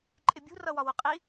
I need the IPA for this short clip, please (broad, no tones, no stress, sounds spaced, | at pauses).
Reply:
ǃʼ ɪ bʲ ṳ r ʌ w ɒ w ʊ qʼ i